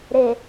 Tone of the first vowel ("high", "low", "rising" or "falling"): low